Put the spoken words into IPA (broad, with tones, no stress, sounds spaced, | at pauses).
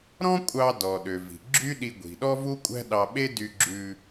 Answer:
ɾ ɔ̃˥ kʷʼ ɑ˧ d ɔ˩ ɗ ø˩ v i̤˩ ɡ͡ǁ y˥ ɗ i˧ ɡʷ i̤˩ ɗ ɔ˥ v u˥ kʷʼ æ̤˥ ɗ ɑ˧ ɓ e˥ d y˧ ɡ͡ǁ ʉ˧